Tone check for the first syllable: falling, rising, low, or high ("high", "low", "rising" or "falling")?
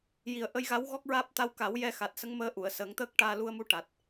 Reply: low